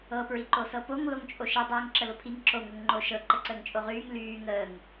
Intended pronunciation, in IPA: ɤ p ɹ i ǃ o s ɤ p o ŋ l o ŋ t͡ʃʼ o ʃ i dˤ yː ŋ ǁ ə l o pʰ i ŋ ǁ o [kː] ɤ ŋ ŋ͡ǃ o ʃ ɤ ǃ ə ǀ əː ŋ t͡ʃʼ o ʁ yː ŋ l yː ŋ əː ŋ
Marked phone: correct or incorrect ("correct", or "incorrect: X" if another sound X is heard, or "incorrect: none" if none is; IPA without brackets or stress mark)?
incorrect: ŋ